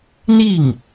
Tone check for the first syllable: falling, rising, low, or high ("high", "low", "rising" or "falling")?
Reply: falling